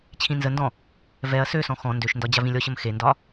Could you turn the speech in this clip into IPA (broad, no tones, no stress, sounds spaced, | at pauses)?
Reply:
t͡ɕʰ ĩ n z ə n d ɔ̃ | v ɛ ɐ̯ s ø s ɔ̃ x ɔ̃ n d ø ʃ n d ɒ d͡ʑ a v ĩ lʲ ɔ ɕ ə m x e n d ɒ